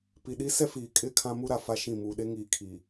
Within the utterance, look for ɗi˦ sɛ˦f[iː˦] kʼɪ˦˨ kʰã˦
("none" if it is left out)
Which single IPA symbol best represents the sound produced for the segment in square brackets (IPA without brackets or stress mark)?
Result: iː˨